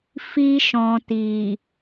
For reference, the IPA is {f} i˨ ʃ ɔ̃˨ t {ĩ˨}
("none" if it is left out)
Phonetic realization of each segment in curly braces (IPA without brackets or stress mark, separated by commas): f, i˨